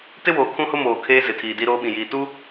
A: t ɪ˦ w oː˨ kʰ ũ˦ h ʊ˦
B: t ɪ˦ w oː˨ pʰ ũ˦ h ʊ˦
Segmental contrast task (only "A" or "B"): A